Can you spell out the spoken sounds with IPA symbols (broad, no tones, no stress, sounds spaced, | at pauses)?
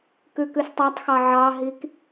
k ʉ k ʉ s tˤ ɑ tˤ x ɑ ʕ ɑ ɦ i k